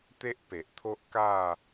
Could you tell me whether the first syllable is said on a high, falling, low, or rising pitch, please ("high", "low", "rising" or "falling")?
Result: high